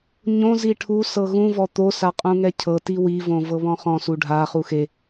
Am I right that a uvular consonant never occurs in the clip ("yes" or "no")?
no